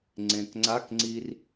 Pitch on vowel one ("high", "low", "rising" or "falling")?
low